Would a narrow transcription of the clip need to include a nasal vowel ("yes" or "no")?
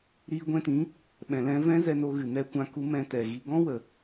yes